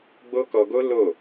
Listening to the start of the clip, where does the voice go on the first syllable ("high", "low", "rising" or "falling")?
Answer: high